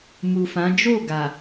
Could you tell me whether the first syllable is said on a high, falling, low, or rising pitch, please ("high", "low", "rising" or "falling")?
low